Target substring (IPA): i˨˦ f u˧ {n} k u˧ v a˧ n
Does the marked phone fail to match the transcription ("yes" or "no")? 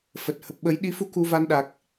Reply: yes